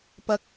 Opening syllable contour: rising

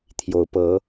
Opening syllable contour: rising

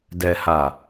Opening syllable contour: low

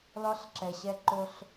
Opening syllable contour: rising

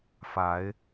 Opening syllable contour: rising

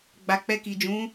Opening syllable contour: low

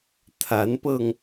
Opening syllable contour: rising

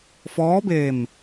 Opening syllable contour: rising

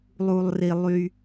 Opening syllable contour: low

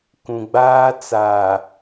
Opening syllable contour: low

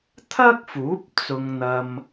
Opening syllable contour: high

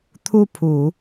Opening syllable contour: falling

